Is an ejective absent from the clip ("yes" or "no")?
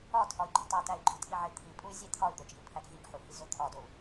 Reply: no